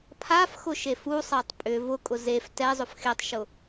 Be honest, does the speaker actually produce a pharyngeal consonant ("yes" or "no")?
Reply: no